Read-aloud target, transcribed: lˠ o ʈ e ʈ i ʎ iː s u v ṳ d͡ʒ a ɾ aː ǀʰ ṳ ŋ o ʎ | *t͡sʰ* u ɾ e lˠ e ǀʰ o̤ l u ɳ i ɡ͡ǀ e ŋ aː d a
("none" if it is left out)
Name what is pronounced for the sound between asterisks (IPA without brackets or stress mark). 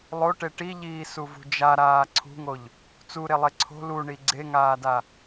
t͡s